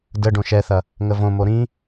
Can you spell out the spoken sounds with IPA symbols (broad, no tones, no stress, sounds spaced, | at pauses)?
d ə ɖ õ ʃ ɛ θ ɐ | ŋ ə v õ m o ɾ ĩ